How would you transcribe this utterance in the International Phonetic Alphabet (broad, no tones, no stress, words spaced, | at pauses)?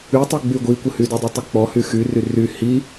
ytˤyɡ͡by ɡʷikʷəhydɔ dˤitˤik͡pɔ hyxyry ry hi